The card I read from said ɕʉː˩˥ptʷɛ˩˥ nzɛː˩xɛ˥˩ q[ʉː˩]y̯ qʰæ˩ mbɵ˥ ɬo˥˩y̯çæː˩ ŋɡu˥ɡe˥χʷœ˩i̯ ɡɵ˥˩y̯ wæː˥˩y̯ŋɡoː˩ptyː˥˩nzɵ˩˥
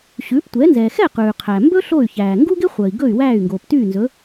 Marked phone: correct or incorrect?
correct